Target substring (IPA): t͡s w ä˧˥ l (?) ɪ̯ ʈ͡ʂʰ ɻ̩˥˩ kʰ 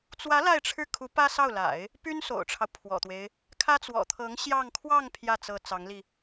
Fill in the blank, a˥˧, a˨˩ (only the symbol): a˥˧